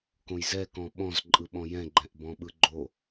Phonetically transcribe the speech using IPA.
kõjzɛkɔ̃ ɓɔ̃zǃʼɯɓɔ̃ jɛ̃ɡ͡ǃɛ̃ʔ bɔ̃ɓɯɡ͡ǃo

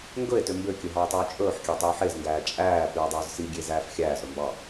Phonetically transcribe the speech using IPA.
ŋɡɵe̯tø mbøkʲɵ ɦɑe̯tˤʉːt͡ʃʼɵːħkʲæ tˤie̯ħezŋɡæː t͡ʃʼæː pʉːdˤɵːzsiɡʲe zæːfxʲæːzɾɵ mbɑ

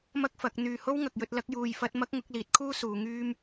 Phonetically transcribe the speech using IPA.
mɐ˥k̚fɐ˨˥k̚n̪yː˧ ho˥wŋɐ˨k̚jɵ˧t̚ lɐ˥k̚juː˧jfɐ˥t̚ mɐ˥k̚ŋʊ˨˥k̚liː˨˥t̚kʰuː˥ suː˨˧ŋyː˥m

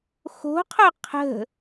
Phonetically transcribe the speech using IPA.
xo̤qʰo qʰə̤

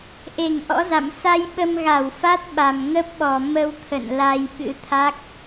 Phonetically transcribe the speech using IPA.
ʔe˧˩ŋʔɔ̰˧˥za̰˧˨m sa˧jɓə˧mɣa˧˩w fa˦˥t̚ɓa˨˩mŋə˦˥p̚ɓɔ˨˩ mə˧wt̪ʰə̰˧˨n la˧jɓɨ̰˧˥t̪ʰa˦˥k̚

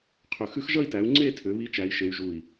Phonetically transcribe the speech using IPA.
qʰʏ˧˩ xʉ˦˥xʒʌ˥˧i̯tæ˨˦u̯ ŋ͡ǀe˥˧tʰʏ˨˦ βi˦˥t͡ʃæ˨˦i̯ʃe˨˦y̯ʒu˧˩i̯

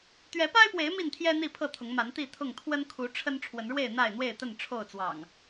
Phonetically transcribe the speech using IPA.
t̪ɥɛ˨˦pa˦ɪ̯pwe˨˦ɪ̯ mi˥˨nt̪ʰjɛ˦ n̪i˥˨pʰɤ˥˨t̪ʰʊ˨˦ŋma˨˦n t̪i˥˨t̪ʰʊ˥˨ŋ t̪ʰwə˦nkʰu˨˦ʈ͡ʂʰə˦n ʈ͡ʂʰwə˨˦nɻwe˥˨ɪ̯ n̪a˥˨ɪ̯n̪we˥˨ɪ̯t̪ə˥˨n ʈ͡ʂʰo˥˨ʊ̯t͡swɑ̰˨˩ŋ

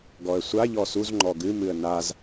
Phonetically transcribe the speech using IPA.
ɡɔə̯sʷa ʎɔsuz ŋ͡ǃɔɡɨ mɨə̯naz

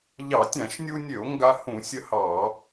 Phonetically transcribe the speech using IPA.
ʎɑ˧˩˧ tʲã˧˩˧ʃnʲu˧nʲø˧˩˧o̯ ŋɡa˧hũ˧˩˧ sʲə˧hɑ˧˩˧

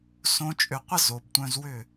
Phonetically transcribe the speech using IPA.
sõ˦t͡ʃʼʏ˧ qʷə˦ zo˨btʷœ̃˧z wʏ˦˨

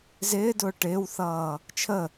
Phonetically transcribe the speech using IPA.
zɪːdʊː ʈɪːwθʌː | t͡ʃʰə

